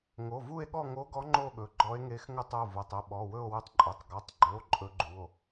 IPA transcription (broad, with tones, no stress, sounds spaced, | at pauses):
ŋ o˩˧˩ v u˥˧ e̯ ɠ ɔ˥˧ ŋ o˧˥ ɡ ɔ˧˥ ŋ͡ǃ o˥˧ ɠ ɵ˩˧˩ ɡ͡ǃ ɔ˧˥ e̯ ŋ e˧˥ x ŋ ə˥˧ tˤ o˩˧˩ v o˩˧˩ tˤ ə˩˧˩ ɓ ɔ˩˧˩ w ɵ˥˧ o̯ w u˧˥ tˤ ǃʼ ɵ˩˧˩ tˤ ɡ ɔ˩˧˩ tˤ ɡ͡ǃ ɵ˩˧˩ o̯ ǃʼ ɵ˧˥ ɡ͡ǃ u˩˧˩ o̯